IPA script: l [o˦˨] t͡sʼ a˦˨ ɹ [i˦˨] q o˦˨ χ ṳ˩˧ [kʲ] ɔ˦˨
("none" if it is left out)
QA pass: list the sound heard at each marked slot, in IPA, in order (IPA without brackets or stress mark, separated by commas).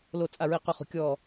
o˦˨, i˦˨, kʲ